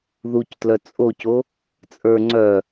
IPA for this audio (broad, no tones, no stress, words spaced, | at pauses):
ðuctlœ t͡sʼoco | t͡sʼə˞ ŋ͡ǀœ